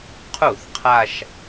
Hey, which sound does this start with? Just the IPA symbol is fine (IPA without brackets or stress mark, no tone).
qʰ